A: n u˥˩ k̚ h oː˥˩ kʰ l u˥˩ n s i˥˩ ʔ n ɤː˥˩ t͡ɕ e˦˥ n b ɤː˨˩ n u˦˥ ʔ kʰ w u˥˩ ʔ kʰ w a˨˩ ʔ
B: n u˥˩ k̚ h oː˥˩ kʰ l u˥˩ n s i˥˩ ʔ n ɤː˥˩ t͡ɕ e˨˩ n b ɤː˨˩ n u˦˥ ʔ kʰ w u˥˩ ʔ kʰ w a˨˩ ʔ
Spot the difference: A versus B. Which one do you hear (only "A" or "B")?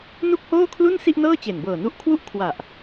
B